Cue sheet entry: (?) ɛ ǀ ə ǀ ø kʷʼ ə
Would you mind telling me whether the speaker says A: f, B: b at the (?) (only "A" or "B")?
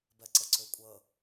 B